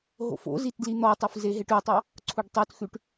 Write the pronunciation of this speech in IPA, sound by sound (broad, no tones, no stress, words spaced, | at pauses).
ɦo̰fo̰zit dlin̪ɔtˤuf zeɦeʈʉtˤɑ | ǀʰuɖtˤʉtxʉʈ